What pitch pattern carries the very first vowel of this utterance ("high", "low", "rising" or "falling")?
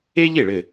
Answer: high